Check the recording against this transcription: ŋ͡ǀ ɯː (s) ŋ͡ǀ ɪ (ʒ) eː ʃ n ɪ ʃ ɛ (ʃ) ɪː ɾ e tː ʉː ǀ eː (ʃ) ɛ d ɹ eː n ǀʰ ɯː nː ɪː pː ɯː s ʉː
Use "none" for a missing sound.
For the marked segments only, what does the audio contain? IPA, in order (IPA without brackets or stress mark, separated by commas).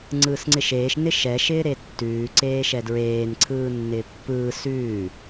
s, ʃ, ʃ, ʃ